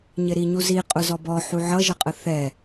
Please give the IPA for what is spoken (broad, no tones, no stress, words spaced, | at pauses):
ɲɪɾiɲuzi qʼʊzɔbɔ ħuʕʌʒʌqʼə θɛ